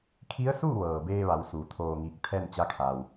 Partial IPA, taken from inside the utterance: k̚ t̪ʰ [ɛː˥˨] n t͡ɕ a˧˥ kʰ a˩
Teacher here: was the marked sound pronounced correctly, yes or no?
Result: yes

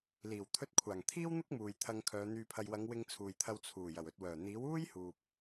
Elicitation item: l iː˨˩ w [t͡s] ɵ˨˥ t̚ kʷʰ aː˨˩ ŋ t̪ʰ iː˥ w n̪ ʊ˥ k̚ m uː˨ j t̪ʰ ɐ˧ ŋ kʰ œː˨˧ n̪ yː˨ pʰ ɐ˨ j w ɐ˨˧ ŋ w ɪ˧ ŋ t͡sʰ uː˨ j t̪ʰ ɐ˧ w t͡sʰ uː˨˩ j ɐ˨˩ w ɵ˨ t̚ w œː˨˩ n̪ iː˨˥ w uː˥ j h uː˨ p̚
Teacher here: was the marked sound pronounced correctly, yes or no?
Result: no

